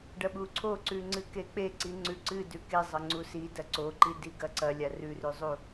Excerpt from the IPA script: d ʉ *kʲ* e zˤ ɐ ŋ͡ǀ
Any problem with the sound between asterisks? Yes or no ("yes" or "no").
yes